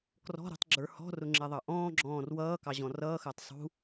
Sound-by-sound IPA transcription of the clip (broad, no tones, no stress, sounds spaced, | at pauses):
k r ɔ̤ ɾ ṳ tˤ ɡ͡ǁ ə˞ h ɔ̤ r ʊ ŋ͡ǁ ɛ ðˤ ɑ ʔ ɔ̃ː ɡ͡ǁ ɔ̃ː r w ʌː k ɑ ʑ ɔ̃ r ʌː x əː tˤ sˤ ṳ